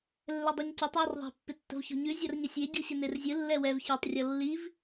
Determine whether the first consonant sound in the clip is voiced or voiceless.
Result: voiced